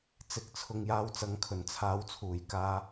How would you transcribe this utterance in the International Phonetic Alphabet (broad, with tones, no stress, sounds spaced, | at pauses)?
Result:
t͡s ɪ˨˥ k̚ t͡sʰ ʊ˨ ŋ j aː˧ w t͡s ɐ˨˥ ŋ kʰ ɵ˨˩ n t͡sʰ aː˨˥ w t͡sʰ uː˨˩ j k aː˧